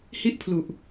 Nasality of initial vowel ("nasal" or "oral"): oral